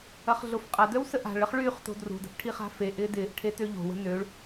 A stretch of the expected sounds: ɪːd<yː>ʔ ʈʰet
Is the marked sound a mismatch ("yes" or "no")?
yes